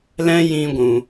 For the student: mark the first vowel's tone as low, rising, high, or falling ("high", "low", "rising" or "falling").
high